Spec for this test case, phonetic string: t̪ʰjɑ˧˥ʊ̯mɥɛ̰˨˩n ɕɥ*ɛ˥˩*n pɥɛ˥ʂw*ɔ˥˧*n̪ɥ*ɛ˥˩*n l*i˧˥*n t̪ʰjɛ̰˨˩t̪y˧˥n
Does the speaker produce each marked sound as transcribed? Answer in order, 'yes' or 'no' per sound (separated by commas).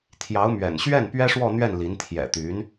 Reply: yes, yes, yes, yes